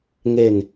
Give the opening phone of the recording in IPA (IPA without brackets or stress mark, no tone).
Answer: ŋ